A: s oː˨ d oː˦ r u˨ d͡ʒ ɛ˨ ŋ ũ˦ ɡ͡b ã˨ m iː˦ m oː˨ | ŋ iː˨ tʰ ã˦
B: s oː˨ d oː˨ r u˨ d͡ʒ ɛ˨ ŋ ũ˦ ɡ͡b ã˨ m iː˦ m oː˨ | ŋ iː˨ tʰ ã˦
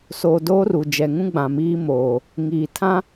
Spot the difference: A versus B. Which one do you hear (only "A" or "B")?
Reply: A